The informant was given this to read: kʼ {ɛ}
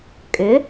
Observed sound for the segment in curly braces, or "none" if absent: ʏ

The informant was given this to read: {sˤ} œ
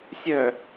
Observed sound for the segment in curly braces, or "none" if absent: sʲ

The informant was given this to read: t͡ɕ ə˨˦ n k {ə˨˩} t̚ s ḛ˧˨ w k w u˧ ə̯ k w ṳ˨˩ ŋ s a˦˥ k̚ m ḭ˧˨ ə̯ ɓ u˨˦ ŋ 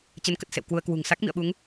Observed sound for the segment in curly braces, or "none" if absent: ə˨˩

